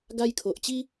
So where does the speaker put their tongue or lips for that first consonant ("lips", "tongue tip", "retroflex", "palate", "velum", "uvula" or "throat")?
velum